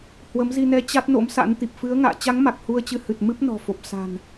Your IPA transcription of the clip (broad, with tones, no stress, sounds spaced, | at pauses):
h w ə˨˦ m z i˧ n ɛ˧ t͡ɕ a˦˥ t̚ n o̰˧˥ m s a̰˧˥ n t̪ i˨˩ p̚ f ɨ˨˦ ə̯ ŋ a̰ː˧˨ t͡ɕ a˨˦ ŋ m a˨˩ k̚ h u˧ ə̯ t͡ɕ ɨ˨˦ h ɨ˨˩ t̚ m ɨ˦˥ p̚ n ɔ̤˨˩ f o˨˩ p̚ s a̤˨˩ n